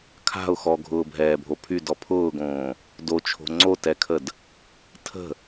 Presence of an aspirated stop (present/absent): present